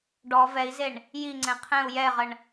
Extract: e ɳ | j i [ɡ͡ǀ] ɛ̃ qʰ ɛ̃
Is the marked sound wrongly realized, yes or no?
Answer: yes